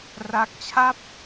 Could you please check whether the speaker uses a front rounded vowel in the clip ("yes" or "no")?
no